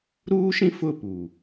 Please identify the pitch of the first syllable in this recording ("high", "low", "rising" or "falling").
high